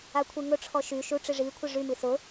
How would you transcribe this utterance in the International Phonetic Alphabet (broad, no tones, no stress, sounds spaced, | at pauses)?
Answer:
a kʷʰ i ŋ ʊ ʈ͡ʂʰ ɔ ʃ y ʃ u ʈ͡ʂ i ʐ i kʷʰ ɪ ʐ y m i s ʊ